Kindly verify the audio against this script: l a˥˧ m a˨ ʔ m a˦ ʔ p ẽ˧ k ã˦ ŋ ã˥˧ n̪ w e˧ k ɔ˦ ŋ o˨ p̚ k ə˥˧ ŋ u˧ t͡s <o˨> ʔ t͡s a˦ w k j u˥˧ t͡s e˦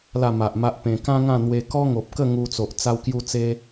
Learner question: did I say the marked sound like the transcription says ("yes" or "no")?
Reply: yes